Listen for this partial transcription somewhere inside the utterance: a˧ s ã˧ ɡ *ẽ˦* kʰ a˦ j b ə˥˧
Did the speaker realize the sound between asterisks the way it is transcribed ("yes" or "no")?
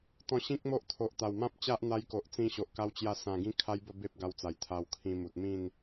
no